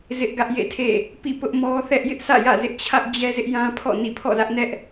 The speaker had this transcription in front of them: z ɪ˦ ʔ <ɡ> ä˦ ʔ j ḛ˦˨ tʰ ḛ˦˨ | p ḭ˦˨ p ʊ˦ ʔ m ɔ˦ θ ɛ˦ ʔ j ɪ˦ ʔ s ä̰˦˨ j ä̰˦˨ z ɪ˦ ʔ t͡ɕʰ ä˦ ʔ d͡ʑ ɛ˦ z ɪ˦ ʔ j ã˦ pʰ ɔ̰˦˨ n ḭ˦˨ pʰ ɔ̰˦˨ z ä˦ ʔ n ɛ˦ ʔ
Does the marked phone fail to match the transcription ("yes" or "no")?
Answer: no